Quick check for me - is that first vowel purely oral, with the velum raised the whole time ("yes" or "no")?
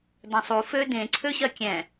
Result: no